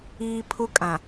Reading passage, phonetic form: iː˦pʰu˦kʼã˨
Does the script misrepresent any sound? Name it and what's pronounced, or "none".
none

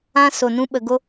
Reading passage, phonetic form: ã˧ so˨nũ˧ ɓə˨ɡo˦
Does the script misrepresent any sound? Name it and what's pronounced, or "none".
none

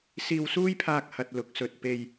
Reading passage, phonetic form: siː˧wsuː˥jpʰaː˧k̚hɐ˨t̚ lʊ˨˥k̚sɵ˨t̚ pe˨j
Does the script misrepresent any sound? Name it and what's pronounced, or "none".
none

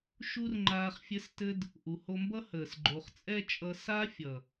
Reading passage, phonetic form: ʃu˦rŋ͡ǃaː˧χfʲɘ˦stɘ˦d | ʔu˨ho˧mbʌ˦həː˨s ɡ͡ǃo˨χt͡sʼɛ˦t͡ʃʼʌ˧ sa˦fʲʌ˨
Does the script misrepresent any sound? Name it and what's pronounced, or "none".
none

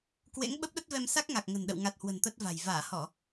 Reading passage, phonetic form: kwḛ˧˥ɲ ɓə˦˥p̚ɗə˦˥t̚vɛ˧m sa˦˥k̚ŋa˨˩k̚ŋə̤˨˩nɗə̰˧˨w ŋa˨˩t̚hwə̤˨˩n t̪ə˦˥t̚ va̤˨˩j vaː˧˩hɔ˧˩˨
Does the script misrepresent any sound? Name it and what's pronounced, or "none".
ɲ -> ŋ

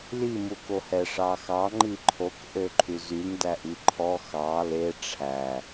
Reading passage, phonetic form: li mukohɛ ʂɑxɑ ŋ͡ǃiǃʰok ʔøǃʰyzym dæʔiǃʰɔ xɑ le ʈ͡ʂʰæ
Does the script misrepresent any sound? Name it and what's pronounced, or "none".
none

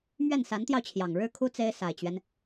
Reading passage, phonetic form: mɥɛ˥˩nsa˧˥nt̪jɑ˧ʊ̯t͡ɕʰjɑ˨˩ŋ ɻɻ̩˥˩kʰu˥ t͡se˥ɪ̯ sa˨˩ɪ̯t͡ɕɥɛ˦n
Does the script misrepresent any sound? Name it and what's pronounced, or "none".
none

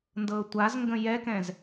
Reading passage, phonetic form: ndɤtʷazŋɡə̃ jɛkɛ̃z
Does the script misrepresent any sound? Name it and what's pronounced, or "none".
none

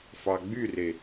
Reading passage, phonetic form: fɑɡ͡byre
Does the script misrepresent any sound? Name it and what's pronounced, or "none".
none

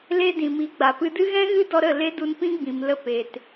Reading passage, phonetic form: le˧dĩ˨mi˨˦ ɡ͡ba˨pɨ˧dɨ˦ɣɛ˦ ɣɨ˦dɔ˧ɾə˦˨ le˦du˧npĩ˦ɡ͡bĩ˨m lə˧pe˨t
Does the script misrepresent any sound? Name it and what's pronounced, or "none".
ɛ˦ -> ɛ̃˦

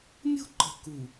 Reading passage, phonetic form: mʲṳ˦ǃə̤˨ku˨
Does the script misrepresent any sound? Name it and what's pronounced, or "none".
none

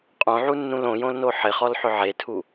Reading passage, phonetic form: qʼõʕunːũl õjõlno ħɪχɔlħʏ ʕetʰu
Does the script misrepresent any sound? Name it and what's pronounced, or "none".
none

